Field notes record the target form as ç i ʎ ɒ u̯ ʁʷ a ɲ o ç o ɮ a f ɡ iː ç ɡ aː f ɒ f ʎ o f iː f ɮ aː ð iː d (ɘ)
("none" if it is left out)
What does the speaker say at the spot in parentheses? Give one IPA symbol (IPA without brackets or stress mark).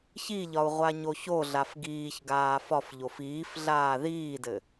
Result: ɘ